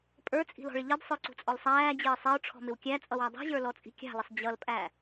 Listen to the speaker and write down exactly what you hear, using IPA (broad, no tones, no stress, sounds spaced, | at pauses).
pʼ ə˞ t͡sʼ i̤ l ɔ̤ ɭ ɪ ʎ ʌ d sˤ ə˞ ǀ ṳ t͡sʼ ɔ l sˤ æː d͡ʑ ɪː sˤ ɛ ʊ̯ ʈ͡ʂʰ ɔ̤ m ɪ w kʲ æ t͡sʼ ʌ w æ dˤ i̤ ʑ ə˞ l ɔ t͡sʼ i̤ kʲ ɑ̤ l ɪ sˤ d͡ʑ ʌ l pʼ æ